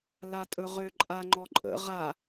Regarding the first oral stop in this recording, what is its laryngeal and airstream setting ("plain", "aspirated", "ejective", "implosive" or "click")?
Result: ejective